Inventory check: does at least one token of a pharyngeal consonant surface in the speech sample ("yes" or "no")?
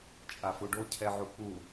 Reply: yes